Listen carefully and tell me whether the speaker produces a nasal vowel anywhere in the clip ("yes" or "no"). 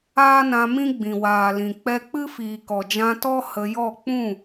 yes